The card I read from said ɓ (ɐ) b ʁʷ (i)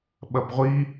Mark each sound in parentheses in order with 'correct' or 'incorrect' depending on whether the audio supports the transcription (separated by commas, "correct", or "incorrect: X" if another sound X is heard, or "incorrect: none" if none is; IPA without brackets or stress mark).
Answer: correct, correct